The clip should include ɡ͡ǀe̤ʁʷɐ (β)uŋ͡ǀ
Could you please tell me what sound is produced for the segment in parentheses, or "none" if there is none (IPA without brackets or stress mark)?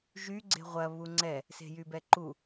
β